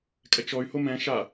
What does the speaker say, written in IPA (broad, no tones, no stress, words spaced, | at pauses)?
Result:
kʼɛt͡ʃɔy̯ homɛ̃ ʃa